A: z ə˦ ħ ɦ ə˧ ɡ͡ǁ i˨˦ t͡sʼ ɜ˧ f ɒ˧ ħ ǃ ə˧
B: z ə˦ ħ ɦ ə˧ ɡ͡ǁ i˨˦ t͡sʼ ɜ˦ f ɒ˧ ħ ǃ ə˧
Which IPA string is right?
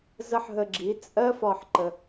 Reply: B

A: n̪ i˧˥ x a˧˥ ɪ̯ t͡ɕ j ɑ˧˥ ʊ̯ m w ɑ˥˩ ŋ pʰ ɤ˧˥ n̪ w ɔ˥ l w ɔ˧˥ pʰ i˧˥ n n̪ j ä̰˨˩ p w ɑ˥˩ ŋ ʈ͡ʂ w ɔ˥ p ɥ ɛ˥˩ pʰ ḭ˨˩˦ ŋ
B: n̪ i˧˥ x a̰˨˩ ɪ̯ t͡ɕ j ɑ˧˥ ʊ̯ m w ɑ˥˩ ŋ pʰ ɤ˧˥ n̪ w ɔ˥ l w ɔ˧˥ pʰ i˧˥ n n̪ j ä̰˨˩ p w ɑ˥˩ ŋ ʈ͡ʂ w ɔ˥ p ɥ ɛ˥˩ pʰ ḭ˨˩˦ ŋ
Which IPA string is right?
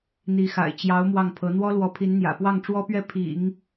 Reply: B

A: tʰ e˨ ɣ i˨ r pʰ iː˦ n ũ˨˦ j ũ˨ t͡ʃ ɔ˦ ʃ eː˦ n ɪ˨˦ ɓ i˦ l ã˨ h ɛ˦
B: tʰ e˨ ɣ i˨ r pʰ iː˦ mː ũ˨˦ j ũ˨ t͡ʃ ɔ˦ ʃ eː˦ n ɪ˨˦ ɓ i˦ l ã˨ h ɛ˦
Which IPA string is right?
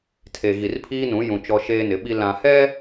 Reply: A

